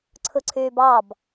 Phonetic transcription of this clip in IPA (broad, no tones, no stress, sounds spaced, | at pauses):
ǀʰ ɯ ǀʰ yː b ɑ b